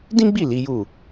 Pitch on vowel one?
high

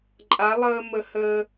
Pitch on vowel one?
rising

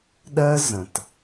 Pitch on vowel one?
high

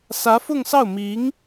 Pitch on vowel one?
rising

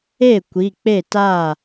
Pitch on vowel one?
falling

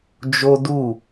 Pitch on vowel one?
high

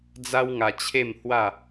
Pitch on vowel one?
high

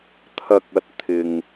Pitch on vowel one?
low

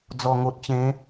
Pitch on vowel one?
low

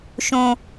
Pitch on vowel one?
high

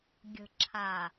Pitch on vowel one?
low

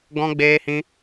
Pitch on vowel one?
high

